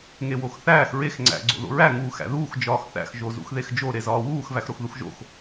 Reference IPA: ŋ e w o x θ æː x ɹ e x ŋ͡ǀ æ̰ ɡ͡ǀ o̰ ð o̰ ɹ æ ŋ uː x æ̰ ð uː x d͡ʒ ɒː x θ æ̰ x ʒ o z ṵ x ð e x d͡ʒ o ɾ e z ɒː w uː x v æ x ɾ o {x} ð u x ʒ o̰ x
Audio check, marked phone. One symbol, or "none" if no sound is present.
x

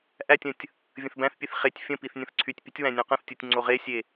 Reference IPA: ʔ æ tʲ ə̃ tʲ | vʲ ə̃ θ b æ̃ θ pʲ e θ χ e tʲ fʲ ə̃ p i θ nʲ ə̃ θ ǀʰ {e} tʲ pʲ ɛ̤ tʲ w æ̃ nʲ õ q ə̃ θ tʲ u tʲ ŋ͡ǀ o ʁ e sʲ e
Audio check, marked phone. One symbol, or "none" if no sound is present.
y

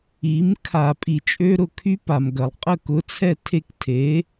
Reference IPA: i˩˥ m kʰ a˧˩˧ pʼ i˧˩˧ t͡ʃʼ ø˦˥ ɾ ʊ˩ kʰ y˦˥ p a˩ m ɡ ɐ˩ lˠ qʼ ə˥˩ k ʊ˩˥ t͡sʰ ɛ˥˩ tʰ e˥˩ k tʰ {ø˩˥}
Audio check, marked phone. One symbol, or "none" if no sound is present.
e˩˥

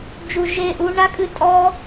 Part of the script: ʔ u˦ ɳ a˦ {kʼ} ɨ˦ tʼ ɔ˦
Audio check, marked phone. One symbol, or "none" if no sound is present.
kʼ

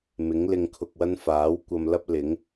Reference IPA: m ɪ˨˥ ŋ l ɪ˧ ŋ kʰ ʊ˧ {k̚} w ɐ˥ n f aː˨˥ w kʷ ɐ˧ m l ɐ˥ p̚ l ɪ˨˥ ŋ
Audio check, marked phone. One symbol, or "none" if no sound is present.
k̚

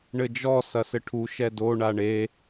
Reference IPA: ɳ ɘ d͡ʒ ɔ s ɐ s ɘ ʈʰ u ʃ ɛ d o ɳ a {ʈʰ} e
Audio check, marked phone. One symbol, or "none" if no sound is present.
ɳ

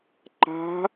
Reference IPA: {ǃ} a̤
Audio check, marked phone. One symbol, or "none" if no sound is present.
ǃ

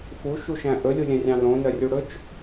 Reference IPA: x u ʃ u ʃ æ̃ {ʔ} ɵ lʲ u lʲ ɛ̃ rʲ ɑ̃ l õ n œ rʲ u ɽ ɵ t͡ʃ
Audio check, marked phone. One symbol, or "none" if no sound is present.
ʔ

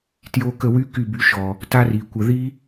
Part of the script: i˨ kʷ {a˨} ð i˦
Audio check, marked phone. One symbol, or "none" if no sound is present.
ə˨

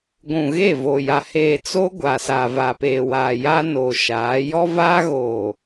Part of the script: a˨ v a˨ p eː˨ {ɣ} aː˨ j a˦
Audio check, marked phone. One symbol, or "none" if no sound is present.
w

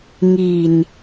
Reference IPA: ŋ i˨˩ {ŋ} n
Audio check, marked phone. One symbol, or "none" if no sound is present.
none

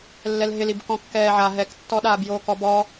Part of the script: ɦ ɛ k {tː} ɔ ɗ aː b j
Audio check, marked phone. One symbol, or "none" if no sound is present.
tː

